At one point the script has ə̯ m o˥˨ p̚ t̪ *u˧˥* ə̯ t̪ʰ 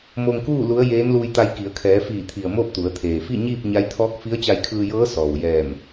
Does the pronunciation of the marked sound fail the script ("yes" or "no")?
yes